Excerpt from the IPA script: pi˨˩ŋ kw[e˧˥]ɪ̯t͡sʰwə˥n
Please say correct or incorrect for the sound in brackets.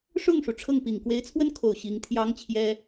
correct